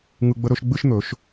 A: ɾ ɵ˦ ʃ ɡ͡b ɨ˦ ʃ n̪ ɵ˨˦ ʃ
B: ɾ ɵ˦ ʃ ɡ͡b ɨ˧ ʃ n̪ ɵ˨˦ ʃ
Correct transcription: A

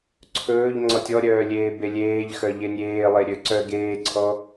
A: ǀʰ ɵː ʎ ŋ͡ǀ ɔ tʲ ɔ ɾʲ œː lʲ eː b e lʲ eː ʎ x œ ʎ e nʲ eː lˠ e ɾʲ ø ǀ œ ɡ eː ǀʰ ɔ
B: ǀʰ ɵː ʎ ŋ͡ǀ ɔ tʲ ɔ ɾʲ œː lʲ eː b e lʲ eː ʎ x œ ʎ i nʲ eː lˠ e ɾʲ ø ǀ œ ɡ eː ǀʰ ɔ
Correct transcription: A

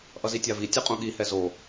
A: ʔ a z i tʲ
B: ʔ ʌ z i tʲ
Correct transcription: B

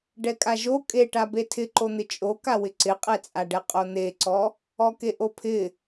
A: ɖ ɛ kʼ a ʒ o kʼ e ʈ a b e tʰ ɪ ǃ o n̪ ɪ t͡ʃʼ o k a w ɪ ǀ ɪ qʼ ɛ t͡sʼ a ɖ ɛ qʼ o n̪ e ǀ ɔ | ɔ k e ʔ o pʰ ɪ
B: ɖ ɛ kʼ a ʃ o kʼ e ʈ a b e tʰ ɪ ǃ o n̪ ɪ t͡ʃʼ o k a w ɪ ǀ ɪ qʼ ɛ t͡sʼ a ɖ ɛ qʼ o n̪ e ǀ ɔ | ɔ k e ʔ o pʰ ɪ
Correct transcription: A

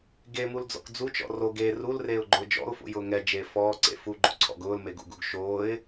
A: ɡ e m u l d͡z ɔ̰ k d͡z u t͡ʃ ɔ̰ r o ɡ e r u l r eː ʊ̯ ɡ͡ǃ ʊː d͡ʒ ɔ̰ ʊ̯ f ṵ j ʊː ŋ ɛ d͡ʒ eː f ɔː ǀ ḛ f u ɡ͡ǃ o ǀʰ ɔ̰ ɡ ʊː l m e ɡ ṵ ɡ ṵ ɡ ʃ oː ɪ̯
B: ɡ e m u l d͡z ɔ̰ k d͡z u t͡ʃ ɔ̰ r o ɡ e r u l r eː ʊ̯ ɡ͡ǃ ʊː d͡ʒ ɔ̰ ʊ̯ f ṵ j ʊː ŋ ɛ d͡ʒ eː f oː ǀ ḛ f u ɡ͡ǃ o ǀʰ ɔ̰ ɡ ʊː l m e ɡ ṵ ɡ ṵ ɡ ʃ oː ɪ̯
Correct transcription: A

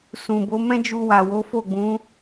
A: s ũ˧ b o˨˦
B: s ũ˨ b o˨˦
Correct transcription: B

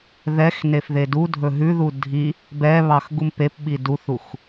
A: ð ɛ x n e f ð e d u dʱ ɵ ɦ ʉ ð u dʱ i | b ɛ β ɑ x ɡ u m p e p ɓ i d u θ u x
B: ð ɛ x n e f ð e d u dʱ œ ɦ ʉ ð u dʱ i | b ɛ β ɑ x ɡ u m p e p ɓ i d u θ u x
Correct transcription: A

